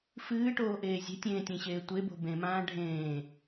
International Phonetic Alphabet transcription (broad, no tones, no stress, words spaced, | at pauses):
fɨːʈoːʔeː zʲe̤tʲẽːtʲẽɕeː tʷebo̤ bẽmãː ɖʱẽː